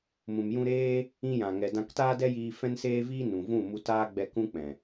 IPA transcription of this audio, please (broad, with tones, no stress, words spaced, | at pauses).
mũ˨mjũ˧ɾeː˦ | ĩ˧jã˨ŋɛ˨ dã˧ktaː˦dɛ˦jiː˧ fɛ̃˦nseː˦viː˦ nũ˨vũ˦˨mu˧ taː˦ɡ͡bɛ˧ kũ˦k͡pɛ̃˨